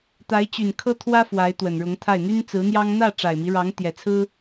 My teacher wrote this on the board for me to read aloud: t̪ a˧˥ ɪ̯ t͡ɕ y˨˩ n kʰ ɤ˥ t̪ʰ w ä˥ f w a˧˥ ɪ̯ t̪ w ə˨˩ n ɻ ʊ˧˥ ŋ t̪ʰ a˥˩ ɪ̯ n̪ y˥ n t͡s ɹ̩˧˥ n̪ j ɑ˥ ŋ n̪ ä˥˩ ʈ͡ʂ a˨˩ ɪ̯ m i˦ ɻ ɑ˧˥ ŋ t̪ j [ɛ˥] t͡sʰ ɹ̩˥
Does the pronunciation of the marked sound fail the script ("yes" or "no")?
yes